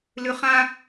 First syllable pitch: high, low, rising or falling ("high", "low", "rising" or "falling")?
low